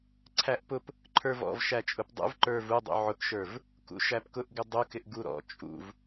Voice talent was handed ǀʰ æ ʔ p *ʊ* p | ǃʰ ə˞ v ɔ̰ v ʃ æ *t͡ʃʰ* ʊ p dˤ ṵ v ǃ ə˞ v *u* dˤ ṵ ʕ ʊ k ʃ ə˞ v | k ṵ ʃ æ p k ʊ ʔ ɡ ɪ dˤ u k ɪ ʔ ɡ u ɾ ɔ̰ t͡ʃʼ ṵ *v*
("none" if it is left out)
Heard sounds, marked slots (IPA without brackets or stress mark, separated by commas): ʊ, t͡ʃʼ, u, v